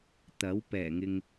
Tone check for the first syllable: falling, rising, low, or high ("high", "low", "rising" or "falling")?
rising